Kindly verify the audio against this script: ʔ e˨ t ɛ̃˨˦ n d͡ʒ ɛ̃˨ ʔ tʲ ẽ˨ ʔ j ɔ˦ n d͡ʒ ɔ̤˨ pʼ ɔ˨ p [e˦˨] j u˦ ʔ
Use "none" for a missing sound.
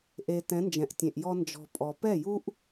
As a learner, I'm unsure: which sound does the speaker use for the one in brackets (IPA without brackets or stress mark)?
ɛ˦˨